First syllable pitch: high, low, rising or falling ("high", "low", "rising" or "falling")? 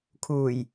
low